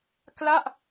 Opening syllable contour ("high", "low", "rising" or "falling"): falling